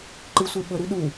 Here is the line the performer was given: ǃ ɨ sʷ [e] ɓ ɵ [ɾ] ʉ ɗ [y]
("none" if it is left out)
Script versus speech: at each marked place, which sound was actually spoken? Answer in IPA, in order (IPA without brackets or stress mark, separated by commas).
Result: e, ɾ, u